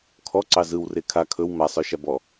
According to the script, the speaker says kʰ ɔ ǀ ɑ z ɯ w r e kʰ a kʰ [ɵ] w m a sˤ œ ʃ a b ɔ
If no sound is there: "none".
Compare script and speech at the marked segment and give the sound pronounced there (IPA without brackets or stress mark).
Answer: ɵ